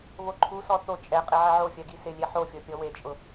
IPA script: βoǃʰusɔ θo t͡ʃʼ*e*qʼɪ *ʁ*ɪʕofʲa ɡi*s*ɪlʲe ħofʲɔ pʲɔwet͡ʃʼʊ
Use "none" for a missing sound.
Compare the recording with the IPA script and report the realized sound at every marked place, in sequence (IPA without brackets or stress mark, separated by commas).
ɛ, ʕ, s